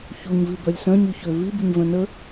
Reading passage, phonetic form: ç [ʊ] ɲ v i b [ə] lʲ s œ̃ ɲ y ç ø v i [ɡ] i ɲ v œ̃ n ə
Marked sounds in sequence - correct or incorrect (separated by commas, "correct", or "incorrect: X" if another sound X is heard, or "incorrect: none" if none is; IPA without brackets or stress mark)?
incorrect: u, incorrect: œ, incorrect: b